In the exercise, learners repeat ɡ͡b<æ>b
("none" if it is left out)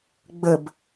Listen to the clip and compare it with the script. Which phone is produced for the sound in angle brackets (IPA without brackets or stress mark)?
ə